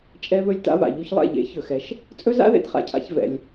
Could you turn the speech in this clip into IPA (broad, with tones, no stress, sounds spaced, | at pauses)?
t͡ʃʼ ɛ˦ β ɵ˦ lʲ t a̰˦ β a̰˨ ʎ u˧ ç lˠ ɛ̰˦˨ ʎ ḛ˨˦ ç ɵ˨ x ɛ˧ ʃ | t͡sʼ ɵ˦ z a̰˦ ð ḛ˧ d χ a̰˨ cʰ a̰˧ ç v ɛ̰˧ lʲ